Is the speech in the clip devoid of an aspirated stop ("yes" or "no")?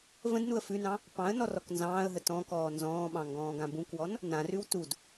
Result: yes